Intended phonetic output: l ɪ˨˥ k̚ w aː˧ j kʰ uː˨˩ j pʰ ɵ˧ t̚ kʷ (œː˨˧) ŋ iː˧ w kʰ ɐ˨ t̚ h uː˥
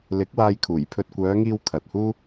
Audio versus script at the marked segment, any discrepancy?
no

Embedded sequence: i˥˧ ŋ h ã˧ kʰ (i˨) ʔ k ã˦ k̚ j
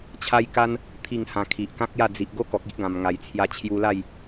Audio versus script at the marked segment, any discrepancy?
no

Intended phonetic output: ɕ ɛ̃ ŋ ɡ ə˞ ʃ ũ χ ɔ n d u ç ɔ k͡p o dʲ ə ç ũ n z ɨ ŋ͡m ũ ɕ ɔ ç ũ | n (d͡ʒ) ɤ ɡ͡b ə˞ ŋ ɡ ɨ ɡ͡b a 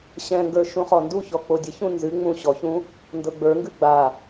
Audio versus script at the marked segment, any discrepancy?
yes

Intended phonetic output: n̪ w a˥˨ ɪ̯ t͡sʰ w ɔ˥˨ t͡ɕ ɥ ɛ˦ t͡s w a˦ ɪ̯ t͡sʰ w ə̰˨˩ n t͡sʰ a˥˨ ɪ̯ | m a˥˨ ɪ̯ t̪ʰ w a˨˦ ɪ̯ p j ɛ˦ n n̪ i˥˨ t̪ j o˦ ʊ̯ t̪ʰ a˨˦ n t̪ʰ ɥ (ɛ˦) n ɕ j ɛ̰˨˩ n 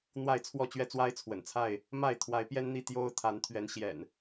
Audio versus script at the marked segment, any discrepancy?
yes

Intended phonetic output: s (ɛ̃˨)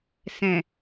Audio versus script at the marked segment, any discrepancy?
no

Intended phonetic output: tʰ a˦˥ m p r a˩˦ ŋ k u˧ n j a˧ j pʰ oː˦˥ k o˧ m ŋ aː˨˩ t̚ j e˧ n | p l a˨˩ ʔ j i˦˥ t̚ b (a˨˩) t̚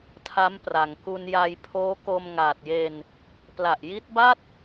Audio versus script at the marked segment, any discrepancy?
yes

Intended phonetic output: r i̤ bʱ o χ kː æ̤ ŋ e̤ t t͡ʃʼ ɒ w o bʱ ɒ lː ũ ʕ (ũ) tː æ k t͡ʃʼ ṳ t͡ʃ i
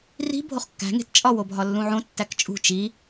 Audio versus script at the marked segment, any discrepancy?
yes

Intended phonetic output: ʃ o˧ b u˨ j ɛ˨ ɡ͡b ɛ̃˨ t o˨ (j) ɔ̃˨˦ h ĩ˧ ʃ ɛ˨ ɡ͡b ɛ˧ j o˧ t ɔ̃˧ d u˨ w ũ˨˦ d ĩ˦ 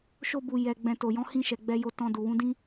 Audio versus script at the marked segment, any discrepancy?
no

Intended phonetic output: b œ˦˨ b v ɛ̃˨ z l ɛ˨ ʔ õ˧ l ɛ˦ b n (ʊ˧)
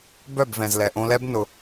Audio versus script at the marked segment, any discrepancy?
no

